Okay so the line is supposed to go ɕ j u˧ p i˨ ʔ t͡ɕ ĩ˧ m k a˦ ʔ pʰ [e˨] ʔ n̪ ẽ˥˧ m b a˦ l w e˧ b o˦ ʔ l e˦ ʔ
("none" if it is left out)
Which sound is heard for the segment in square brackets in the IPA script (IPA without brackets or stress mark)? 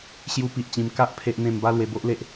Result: e˦